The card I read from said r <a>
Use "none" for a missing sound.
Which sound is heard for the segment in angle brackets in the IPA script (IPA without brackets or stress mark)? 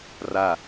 a